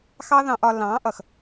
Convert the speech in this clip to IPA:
x ɑ˦ ð ɑ̃˧ ʔ ɒ˧ l ɑ̃˨˦ ʔ ʌ˨ x

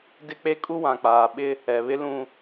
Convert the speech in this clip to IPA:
d ɪ˦ k͡p e˦ kʼ u˦ w ã˨ k͡p aː˨ ɓ ɪ˦ | ɛ˨ β ɪ˦ l ũ˦

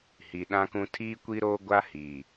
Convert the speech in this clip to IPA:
h i˨ ɗ ã˦ k ũ˦ tʰ iː˦ kʷ i˦ ɾ oː˦ ɡʷ a˦ h iː˨

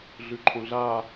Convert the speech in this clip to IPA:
ɮ ʉ ǃʰ õ ɮ a

